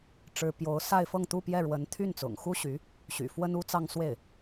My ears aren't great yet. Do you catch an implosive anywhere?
no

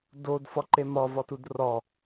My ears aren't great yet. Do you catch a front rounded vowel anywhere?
no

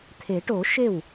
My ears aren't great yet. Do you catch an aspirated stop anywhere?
yes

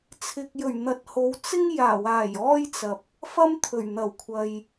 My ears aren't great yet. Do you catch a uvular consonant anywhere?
no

